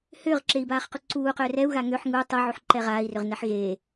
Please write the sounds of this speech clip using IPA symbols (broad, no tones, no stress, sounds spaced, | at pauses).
h ʏː ʁ ǁ e i̯ b aː χ q u ǀ uː q ø r ɛ u̯ ɣ a ŋ ø ħ ŋ u tˤ ɯ ʕ u ħ ǃ ɛ ʁ aː i̯ r ʏ ʁ n ɛ ħ ɣ eː